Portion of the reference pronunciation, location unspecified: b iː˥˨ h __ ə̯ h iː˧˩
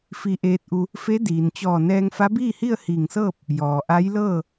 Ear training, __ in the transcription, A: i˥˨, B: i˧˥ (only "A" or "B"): A